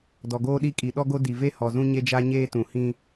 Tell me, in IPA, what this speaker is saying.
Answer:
dɔ˨ɡoː˦ɗi˦kʼi˨ ɗɔ˦ɡo˦ di˨ve˦ hɔ˨ zũ˦ɲe˦d͡ʒa˦ɲeː˦ tũ˨hĩ˦

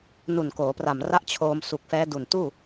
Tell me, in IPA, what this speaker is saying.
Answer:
nu˨˩nkoː˩˦pra˨˩mra˦˥ʔ t͡ɕʰoː˧msu˨˩k̚fɛː˦˥ du˨˩n tuː˥˩

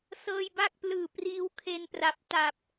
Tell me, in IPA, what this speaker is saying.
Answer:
sɤː˧jba˥˩k̚ plɯː˨˩ priː˦˥wkʰe˧npra˨˩p̚ ta˨˩p̚

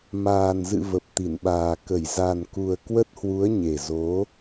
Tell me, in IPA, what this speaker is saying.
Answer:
maː˨˩nzɨ̰˧˨ və˨˩p̚t̪i˧˩nɓaː˨˩ kə˧˩j za˨˩nku˨˩ə̯ kwə˦˥t̚hwu˨˦ə̯ ɲe˨˩zo˨˦

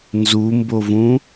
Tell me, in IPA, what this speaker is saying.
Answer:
nzumbovũ

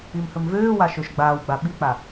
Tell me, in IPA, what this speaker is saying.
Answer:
imhɵmvøːwa ʃøʃɡ͡baːwɡ͡ba ɓik͡pa

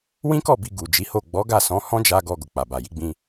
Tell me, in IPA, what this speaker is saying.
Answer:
wĩ˦kɔ˦˨ bi˧ɡu˨ d͡ʒi˨˦ho˦˨ ɡ͡bɔ˨˦ɡa˦˨sɔ̃˨˦ hɔ̃˦d͡ʒa˧ ɡɔ˧ ɡo˨k͡pa˨ba˨ ji˨˦ɡ͡bĩ˧

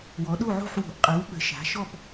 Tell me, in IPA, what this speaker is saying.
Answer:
wɔ˩˧ɗo˦˨ʕo̤˦˨ħ wo̤˩˧ʔqʼɜ˩˧w ɓə̤˩˧ʃa̤˩˧ʃɔ˦˨p

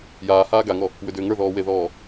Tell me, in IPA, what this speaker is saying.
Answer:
jaːhaː ɡaŋɔ | wʏdʏːŋə˞ðɔː weðɔː

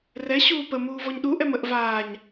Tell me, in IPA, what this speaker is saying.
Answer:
rɛ ɕuːpə muːvɔɲɗu ʔɛməʔ vaːɲ

